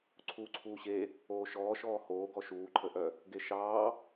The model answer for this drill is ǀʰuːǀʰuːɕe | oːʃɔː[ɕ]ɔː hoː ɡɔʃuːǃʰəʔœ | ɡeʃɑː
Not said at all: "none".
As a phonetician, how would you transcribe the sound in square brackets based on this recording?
ʃ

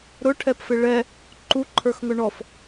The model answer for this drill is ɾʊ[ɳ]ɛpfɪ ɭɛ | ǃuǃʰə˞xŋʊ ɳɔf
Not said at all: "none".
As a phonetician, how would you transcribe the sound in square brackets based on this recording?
ʈʰ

